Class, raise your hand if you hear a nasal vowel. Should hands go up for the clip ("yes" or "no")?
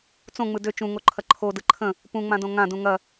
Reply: yes